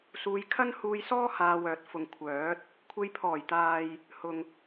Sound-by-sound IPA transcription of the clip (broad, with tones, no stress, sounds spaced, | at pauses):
s uː˧ j kʰ ɐ˥ n h uː˧ j s ɔː˥ h aː˧ w œː˨ t̚ f ʊ˨ ŋ kʷʰ œː˨˥ t̚ | kʷʰ e˧ j pʰ ɔː˨˩ j t̪ aː˨ j | h ʊ˨ ŋ